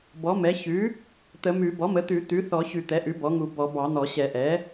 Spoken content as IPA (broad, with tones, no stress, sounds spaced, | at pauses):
b ɔ˩˥ m ɛ˩˥ ç ʉ˩˥ | t̪ ə˨˩˦ m ʉ˨˩˦ b ɔ˩˥ m ə˩˥ t̪ ʉ˨˩˦ t̪ ʉ˩˥ θ ɔ˨˩˦ ç ʉ˨˩˦ t̪ ɛ˩˥ ʔ ʉ˩˥ b ɔ˩˥ ŋ u˨˩˦ b ɔ˨˩˦ b ɑ˨˩˦ n̪ ɔ˨˩˦ ɕ ɛ˨˩˦ ʔ ɛ˩˥